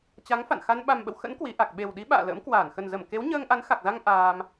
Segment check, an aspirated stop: absent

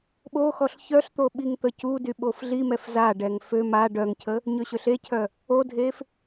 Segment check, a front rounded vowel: present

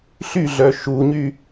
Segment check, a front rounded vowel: present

